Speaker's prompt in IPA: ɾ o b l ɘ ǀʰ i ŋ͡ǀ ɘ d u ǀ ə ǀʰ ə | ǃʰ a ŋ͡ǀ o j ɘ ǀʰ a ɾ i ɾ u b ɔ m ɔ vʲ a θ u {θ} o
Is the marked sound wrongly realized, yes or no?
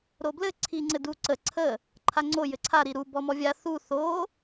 no